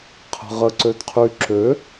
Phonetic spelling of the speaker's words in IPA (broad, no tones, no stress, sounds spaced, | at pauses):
qʰ ə̤ ʁ ə ǀ ø d qʰ y ǁ ø